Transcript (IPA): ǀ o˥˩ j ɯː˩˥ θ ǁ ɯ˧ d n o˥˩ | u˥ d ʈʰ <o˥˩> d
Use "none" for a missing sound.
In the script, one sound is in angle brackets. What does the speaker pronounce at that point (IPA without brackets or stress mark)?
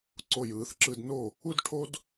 o˥